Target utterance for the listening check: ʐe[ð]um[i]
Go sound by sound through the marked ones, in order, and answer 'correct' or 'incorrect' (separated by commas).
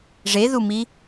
correct, correct